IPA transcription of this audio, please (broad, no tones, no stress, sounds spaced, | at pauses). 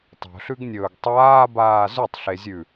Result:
tˤ o̤ ɬ ʉ ɡ nʲ ɵː ɡ tˤ aː b aː z ʉ tˤ ɬ e zʲ ʉ